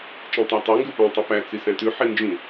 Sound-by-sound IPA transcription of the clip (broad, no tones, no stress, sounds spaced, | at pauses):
t͡ʃ ĩ tˤ æ tˤ ø ŋ ɡ ʉ p æ̃ tˤ ʉ p æ t͡s i s æ̃ t ʉ ħ i n d͡ʒ ĩ